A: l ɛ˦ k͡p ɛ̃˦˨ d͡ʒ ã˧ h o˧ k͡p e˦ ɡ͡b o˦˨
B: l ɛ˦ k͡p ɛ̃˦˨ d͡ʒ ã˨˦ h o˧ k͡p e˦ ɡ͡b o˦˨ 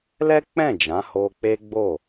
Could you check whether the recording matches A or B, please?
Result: B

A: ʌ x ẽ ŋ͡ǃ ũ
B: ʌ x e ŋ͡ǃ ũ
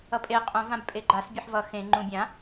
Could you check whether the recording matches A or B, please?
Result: A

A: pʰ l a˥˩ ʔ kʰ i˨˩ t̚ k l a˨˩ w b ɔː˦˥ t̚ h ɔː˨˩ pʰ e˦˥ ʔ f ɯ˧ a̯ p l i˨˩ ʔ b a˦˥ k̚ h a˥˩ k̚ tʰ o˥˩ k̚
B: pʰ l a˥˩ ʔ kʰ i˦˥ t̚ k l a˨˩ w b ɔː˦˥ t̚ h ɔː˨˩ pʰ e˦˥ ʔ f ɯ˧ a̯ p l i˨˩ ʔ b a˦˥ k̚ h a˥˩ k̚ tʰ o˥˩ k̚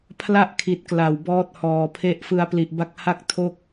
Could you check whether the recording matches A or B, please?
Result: A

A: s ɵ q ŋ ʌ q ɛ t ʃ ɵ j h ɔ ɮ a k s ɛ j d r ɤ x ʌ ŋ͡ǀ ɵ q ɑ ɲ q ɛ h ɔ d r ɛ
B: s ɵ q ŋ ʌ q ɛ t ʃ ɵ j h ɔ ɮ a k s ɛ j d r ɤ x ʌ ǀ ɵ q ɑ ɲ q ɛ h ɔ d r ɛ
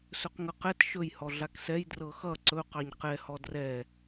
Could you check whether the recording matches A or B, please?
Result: B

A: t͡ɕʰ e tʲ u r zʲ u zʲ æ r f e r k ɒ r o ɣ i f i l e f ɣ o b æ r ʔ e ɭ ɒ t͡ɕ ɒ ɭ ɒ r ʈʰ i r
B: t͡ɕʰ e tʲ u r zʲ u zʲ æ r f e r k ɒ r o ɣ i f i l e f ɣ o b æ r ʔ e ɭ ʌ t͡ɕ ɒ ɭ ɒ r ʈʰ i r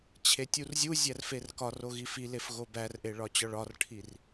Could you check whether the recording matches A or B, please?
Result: A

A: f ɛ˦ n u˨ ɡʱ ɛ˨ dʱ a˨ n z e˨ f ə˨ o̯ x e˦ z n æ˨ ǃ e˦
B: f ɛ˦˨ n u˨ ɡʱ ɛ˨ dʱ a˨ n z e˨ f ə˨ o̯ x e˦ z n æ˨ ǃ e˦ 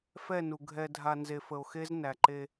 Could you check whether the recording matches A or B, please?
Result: B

